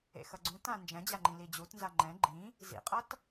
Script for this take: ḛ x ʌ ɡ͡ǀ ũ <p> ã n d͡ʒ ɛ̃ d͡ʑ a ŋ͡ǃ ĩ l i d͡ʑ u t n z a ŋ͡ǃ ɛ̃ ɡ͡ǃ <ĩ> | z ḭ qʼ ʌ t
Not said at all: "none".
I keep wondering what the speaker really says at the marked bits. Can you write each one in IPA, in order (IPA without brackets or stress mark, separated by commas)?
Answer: t, ĩ